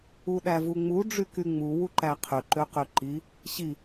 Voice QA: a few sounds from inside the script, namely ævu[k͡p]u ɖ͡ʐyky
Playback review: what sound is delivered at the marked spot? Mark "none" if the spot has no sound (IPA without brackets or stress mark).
ŋ͡m